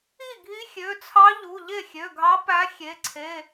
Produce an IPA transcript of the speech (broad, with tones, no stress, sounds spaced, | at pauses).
i˥˩ ɡʱ i˧˥ xʲ ø˩˧˩ t͡sʰ ɑ˧˥ ʎ u˩˧˩ ʎ e˥˩ xʲ ø˩˧˩ ɡʱ ɑ˧˥ p æ˧˥ xʲ e˩˧˩ ǀʰ e˩˧˩